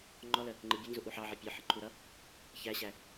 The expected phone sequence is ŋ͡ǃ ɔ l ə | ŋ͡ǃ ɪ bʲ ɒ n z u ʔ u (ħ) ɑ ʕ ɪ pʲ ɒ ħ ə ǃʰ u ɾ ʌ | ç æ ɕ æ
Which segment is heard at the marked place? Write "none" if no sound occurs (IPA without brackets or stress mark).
ħ